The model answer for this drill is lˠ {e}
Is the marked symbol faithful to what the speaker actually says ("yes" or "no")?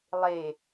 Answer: yes